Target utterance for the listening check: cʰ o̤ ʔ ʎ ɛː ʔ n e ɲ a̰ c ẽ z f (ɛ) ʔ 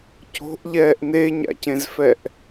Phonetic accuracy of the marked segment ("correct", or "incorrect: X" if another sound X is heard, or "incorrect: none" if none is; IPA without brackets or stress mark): correct